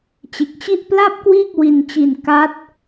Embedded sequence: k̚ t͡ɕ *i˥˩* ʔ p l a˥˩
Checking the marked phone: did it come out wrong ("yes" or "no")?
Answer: no